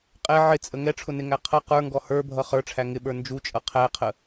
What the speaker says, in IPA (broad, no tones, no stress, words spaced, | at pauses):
qʼɛ ʕɪt͡sʼə ŋɛʈ͡ʂʰʊnɪŋæ qʰʌ qə˞ŋɡɔ hə˞bʱʌ χə˞ʈ͡ʂʰæ ŋɪɓə˞ nd͡ʒut͡ʃʼʌ qʰæqʰə